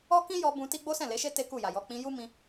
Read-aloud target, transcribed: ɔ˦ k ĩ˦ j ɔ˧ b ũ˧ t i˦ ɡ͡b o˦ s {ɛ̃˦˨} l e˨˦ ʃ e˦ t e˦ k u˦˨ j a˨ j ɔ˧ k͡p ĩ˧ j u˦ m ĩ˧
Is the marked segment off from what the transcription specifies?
no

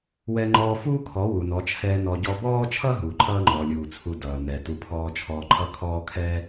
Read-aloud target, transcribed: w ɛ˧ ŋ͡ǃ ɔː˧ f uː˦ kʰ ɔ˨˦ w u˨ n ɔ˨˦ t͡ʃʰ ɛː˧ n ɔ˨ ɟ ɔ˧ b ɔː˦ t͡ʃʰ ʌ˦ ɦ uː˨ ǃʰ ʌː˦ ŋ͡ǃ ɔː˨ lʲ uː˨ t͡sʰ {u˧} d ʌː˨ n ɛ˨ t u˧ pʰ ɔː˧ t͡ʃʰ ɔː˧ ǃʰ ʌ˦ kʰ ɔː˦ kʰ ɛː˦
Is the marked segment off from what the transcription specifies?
no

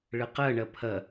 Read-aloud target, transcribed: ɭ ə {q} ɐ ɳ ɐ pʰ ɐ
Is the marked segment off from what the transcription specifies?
no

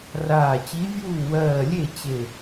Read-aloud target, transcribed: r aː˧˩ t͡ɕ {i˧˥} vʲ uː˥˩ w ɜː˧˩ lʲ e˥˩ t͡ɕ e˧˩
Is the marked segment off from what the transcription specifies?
no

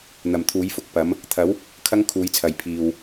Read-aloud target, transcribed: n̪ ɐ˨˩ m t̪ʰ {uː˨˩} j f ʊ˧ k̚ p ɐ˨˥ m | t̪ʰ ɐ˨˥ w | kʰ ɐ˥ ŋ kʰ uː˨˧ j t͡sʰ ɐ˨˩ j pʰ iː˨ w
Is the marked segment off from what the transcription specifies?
yes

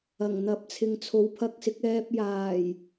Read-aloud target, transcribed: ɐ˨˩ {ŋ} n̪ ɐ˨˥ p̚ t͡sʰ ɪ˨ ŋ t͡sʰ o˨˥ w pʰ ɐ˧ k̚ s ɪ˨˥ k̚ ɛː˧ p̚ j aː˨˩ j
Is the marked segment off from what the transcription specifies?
no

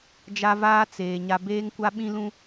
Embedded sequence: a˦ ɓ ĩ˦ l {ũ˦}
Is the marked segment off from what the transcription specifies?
no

